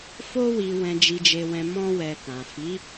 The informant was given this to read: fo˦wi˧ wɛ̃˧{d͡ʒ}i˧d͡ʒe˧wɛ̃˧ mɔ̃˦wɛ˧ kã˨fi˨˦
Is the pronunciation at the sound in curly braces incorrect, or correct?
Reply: correct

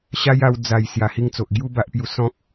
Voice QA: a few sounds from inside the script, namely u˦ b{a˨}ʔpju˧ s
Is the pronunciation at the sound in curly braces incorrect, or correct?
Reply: incorrect: a˦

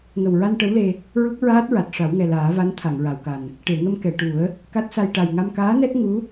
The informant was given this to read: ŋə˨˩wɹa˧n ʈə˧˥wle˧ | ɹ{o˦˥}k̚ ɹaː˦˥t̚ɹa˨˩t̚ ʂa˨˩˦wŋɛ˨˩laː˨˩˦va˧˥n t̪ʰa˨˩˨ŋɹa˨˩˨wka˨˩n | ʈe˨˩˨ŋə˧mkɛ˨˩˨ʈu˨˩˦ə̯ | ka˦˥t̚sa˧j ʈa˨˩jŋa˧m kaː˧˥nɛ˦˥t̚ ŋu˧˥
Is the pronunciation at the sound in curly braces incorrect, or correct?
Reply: incorrect: u˦˥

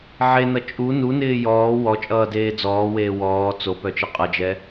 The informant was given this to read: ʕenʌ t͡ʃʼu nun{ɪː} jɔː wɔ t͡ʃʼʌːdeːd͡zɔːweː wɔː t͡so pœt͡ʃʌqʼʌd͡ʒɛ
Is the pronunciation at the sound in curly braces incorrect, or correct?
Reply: correct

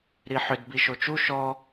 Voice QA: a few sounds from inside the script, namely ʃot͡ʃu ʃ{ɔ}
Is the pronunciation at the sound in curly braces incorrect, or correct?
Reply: correct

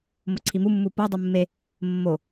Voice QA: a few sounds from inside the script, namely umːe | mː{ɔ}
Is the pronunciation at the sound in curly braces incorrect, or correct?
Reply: incorrect: o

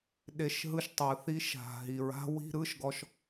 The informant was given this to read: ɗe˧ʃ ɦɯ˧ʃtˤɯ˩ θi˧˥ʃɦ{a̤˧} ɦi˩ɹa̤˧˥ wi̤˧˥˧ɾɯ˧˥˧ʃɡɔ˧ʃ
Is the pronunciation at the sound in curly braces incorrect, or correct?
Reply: incorrect: a̤˩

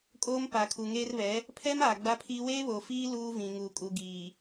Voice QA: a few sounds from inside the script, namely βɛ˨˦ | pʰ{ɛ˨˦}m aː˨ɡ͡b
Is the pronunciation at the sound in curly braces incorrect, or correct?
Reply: incorrect: ɛ˦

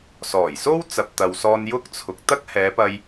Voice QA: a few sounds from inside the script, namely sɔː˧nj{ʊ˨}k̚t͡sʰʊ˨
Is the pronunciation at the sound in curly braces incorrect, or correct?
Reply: incorrect: ʊ˥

